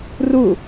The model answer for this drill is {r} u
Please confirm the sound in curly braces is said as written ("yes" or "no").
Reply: yes